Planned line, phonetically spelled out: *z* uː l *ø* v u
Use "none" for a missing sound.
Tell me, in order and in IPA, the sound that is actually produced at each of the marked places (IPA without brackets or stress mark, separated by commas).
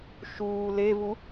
ʃ, e